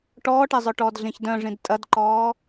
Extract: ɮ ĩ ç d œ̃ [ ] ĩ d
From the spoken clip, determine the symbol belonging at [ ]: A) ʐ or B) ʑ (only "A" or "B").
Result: A